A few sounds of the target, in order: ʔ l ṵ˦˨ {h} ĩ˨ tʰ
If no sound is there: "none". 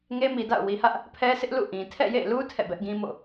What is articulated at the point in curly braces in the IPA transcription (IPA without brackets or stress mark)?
ʔ